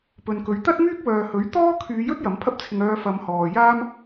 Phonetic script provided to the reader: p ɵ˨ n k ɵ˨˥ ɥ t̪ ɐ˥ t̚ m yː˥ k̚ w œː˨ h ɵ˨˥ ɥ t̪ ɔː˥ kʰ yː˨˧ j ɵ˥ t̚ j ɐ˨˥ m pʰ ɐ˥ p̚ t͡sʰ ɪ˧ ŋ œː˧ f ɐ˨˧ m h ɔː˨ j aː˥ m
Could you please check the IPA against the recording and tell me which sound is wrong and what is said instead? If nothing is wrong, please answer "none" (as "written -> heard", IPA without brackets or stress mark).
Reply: none